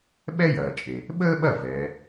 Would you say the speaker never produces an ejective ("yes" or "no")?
no